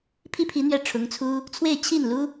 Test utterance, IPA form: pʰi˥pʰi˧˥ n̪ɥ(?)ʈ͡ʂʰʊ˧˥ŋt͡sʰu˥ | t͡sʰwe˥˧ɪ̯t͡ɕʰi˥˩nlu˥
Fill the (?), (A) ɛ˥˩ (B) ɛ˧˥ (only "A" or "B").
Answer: A